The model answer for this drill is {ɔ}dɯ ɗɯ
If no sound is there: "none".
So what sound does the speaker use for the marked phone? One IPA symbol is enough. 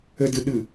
ə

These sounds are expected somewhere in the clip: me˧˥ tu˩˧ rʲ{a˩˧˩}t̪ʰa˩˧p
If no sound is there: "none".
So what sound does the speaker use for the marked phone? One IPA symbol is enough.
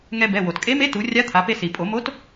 a˧˥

